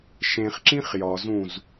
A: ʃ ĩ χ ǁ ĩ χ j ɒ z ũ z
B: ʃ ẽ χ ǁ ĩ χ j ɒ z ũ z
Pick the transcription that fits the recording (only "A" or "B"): B